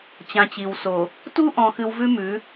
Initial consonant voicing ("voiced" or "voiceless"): voiceless